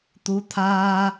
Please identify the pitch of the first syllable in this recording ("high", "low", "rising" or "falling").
rising